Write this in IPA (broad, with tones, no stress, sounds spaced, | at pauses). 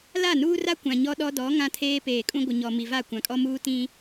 l a˦˨ n uː˦ r a˦ kʷ ã˨ ɲ ɔ˦ ɗ ɔ˦ d ɔ˨˦ ŋ ã˦ tʰ eː˦ p eː˨ kʼ ũ˦ ɡʷ ɪ˨ ɲ ɔ˨ m i˨ v a˦˨ kʷ ã˨ kʼ ɔ˦ m uː˦ t ĩ˦